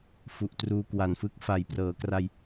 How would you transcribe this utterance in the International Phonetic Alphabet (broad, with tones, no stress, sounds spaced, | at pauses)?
f u˨˩ ʔ t r uː˧ k w a˨˩ n f ɯ˥˩ k̚ f a˨˩ j p r ɤː˩˦ k r a˧ j